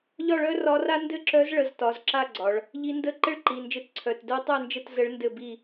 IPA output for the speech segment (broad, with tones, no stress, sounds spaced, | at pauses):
ʎ ɒ˥˨ ɭ œ˥ r ɒ˧˥ r a˥ n d ɘ˥˨ ǁ œ˧˥ z ɭ ə˩˧˩ z t ɒ˩˧˩ z ǁ a˥˨ ɡ͡ǀ ɒ˩˧ ɭ | ʎ i˧˥ n d ə˥˨ ǃ ɘ˥ ɭ ǃ i˩˧˩ n d͡ʒ ɘ˧˥ t ǀʰ œ˩˧˩ t d œ˥ tˤ œ˥˨ n d͡ʒ ə˥˨ t z ə˧˥ ɭ n d ɘ˥˨ b i˥˨